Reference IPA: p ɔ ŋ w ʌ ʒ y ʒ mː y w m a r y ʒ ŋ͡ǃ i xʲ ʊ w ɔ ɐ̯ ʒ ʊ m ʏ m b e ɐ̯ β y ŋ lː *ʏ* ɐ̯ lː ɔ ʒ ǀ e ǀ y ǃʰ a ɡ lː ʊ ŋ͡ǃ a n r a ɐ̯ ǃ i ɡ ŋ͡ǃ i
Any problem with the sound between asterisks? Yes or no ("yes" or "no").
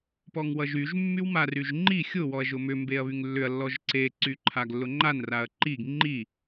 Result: no